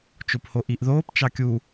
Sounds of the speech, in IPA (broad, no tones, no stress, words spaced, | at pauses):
t͡ʃophoʔiʔðoːp t͡ʃɑkʲu